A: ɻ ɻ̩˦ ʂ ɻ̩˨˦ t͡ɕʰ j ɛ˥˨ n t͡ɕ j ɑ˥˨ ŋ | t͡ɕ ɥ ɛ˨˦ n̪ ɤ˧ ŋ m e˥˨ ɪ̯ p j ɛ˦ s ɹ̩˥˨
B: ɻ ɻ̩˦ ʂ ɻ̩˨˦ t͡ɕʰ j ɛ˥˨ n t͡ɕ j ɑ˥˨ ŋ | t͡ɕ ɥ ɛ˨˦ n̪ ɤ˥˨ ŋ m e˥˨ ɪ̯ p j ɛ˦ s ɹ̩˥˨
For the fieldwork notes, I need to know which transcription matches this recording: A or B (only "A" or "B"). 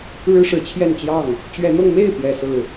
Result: A